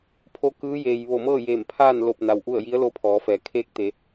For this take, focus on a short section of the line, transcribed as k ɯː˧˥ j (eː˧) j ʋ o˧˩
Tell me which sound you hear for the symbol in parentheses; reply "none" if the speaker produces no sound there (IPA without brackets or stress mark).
eː˩